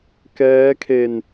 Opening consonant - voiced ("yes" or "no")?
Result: no